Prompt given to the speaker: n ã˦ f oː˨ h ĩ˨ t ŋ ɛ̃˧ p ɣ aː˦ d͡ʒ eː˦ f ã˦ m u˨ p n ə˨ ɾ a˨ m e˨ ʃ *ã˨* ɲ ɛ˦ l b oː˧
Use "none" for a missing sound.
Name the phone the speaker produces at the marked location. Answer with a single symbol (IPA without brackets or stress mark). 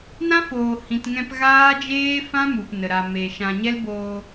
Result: ã˨